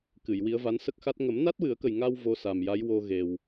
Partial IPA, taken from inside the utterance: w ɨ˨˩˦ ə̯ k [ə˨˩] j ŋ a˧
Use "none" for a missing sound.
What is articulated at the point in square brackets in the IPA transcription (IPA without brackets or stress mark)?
ə˨˩